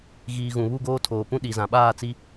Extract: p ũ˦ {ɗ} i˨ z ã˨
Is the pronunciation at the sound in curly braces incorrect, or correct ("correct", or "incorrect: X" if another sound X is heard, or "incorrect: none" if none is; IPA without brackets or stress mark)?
correct